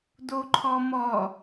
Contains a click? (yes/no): yes